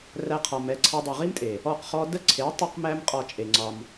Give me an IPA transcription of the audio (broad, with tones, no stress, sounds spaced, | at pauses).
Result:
r æ˦ qʰ ɒ˧ m ɛ˦ ǀʰ a˦ dˤ i˨ ʁ i˦ m tʼ e˨ | ɔ˦˨ q χ ɔ˦ d ə˦ ǀʰ e˨˦ tˤ a˦ q m æ˦ m qʼ ɒ˧ t͡ʃʼ e˨ ŋ͡ǀ ɒ˧ m